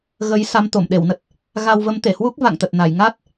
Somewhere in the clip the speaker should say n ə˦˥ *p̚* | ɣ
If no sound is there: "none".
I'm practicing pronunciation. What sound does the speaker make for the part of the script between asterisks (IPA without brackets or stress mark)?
t̚